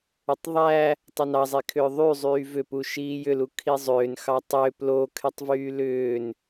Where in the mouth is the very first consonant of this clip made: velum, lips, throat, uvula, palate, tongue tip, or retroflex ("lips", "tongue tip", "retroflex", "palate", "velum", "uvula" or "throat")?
tongue tip